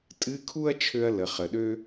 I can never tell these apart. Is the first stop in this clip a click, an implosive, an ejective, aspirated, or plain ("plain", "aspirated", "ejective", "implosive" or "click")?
ejective